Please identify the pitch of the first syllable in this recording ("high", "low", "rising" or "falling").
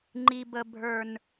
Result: low